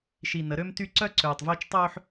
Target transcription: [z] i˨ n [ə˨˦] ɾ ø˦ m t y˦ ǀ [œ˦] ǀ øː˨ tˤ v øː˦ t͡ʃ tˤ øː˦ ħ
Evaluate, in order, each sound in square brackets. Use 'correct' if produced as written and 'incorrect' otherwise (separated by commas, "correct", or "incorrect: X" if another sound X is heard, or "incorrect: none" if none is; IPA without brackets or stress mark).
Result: incorrect: ʃ, correct, correct